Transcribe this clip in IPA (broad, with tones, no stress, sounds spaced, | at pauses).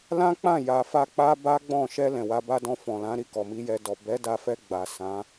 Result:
l ã˦ k͡p ã˦˨ j a˨ f a˧ k͡p a˦ b a˦ ɡ͡b ɔ̃˦˨ ʃ ɛ˧ l ɛ̃˨ w a˧ b a˦ d ɔ̃˧ f ɔ̃˨ l ã˨˦ ɾ i˧ k ɔ˨ m i˧ j ɛ˧ d ɔ˨ b ɛ˨˦ d a˧ f ɛ˧ ɡ͡b a˨ s ã˨˦